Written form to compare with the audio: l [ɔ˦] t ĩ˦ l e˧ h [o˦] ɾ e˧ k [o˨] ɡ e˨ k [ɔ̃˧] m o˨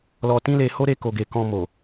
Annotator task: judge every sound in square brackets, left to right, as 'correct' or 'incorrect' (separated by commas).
incorrect, correct, correct, correct